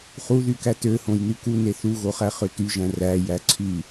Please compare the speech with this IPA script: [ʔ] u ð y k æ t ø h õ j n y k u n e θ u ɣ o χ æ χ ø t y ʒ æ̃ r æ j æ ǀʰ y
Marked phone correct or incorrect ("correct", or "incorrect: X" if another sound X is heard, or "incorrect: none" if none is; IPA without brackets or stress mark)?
incorrect: χ